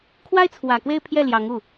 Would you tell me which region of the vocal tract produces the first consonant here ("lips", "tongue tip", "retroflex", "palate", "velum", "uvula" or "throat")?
velum